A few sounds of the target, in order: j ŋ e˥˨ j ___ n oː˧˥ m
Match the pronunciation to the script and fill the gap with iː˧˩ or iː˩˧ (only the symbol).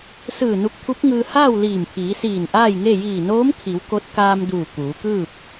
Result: iː˧˩